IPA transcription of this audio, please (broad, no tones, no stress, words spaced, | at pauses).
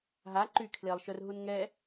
ɦa ǃykʰlelˠʃœrɦun ŋɛ